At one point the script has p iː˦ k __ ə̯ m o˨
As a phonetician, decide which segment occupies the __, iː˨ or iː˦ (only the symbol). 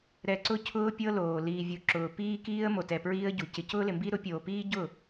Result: iː˦